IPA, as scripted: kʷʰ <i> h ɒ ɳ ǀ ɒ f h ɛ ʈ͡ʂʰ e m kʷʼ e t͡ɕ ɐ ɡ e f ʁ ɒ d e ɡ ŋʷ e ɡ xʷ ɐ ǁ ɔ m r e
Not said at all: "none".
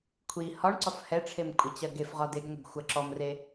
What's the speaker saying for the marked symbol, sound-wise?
i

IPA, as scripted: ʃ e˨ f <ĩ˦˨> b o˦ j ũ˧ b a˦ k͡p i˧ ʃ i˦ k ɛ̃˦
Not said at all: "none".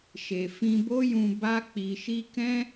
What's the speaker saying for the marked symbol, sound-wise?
ĩ˧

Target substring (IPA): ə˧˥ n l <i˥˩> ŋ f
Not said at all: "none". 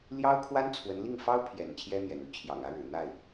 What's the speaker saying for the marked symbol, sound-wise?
i˥˩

